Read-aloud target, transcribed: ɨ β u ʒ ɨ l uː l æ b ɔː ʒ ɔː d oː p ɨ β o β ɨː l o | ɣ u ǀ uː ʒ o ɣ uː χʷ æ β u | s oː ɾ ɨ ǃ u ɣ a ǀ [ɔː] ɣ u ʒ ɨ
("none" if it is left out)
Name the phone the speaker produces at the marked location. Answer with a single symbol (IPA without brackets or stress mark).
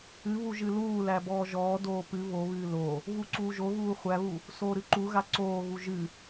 oː